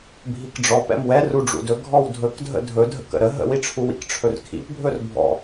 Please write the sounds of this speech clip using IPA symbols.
bʱ i k ɖ͡ʐ ɔ p ɛ̰ m w ɛ r u ɖ͡ʐ ṵ d ɵ ɡʱ ɔ w dʱ ɵ k dʱ ə̰ dʱ ɵ dʱ ə̰ k ə̰ ɾ ə ɦ ə̰ w i ʈ͡ʂʰ u w ḭ k ʈ͡ʂʰ ɵ r kʰ ḭ p bʱ ɵ r bʱ ɔ̰

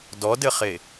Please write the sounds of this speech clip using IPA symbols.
d ɔ d ɘ χ e

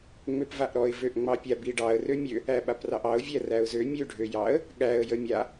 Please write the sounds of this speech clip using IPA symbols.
ŋ͡m ø p v a ʔ ɾ ɔ ɪ̯ v ø ʔ ŋ͡m ɑ pʲ a b i ɖ ɑ ə̯ r ø mʲ ø | æ ɓ a p r ɑ ʔ ɑ ʊ̯ vʲ æ r æ ʊ̯ z ø mʲ ø ɖʱ ø j ɑ ə̯ | ɠ æ ə̯ j ə mʲ a

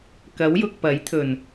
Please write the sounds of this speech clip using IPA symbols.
k ɐ˨˥ w j ʊ˨ k̚ p ɐ˨˥ j t̪ʰ ɵ˨˩ n

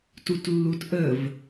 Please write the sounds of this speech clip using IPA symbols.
t u t lː u t ʔ ə v

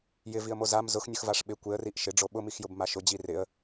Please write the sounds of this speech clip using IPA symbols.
j ɪ v i ə̯ m o z a m z ʊ x nʲ ʊ x v a ʂ ɓ ɪ kʷ e ə̯ r i ʔ ʃ ɪ ɖ͡ʐ o ɓ ʊ m i x j ʊ b m a ʃ ʊ d͡ʑ i r ɪ ə̯

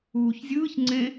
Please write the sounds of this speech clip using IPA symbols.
uː ç zʲ ɯː ç ŋ͡ǀ ẽ

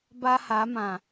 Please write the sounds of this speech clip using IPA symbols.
b a˦ h a˨˦ m ã˨

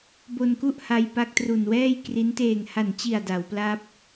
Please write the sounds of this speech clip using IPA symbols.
b o˧ n k u˥˩ ʔ h a˧ j p a˦˥ k̚ t r u˨˩ n w ɛː˥˩ j k r i˦˥ n t eː˨˩ ŋ h a˨˩ n t͡ɕ i˨˩ a̯ d a˩˦ w p l a˥˩ p̚

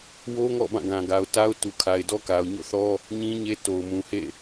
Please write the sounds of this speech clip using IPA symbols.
w o˦ ŋ ɔ̰˦˨ b ã˦˨ ɡ ã˨ ɡ a˨ ʊ̯ t a˦ ʊ̯ t u˨ kʰ a˨ ɪ̯ d ɔ˦ k a˨ ʊ̯ ɲ o̰˦˨ θ ɔ˦ | ɲ ĩ˦ ɲ e˦ t o˨ ʊ̯ m ũ˨ h ḛ˦˨

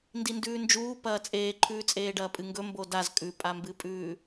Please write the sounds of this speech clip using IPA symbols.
n d i n d ʉː n d͡ʒ uː p ɐː t͡sʼ eː ǃʰ ʉː t͡sʼ eː ɖ ɐː pʼ ɨ ŋ ɡ ɵ m b o d a z kʼ ʉ pʼ a m b ɨ pʼ ʉː

